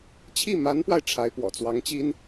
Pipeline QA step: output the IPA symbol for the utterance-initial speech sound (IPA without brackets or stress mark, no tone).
t͡ɕʰ